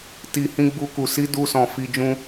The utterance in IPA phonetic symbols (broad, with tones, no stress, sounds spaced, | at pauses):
t i˨ h ĩ˧ ɡ͡b u˧ k u˨ s i˨˦ d u˧ s ɔ̃˨ f i˧ d͡ʒ ũ˦